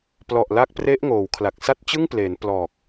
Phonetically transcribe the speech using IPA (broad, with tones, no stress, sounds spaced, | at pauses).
p l ɔ˨˩ ʔ l a˦˥ k̚ p r e˦˥ ʔ ŋ oː˩˦ w kʰ l a˨˩ k̚ s a˥˩ t̚ t͡ɕ ɯ˥˩ ŋ p l e˩˦ n p l ɔː˨˩ k̚